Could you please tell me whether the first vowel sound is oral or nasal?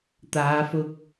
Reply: oral